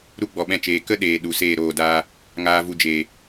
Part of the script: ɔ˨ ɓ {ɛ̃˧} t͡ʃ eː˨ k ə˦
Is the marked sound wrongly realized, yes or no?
no